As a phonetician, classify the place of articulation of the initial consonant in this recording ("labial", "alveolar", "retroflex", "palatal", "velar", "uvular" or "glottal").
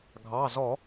velar